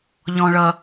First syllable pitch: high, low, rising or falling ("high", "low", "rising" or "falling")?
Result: low